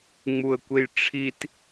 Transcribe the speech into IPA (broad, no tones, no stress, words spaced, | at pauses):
ŋ͡muə̯kʷejʈ͡ʂʰit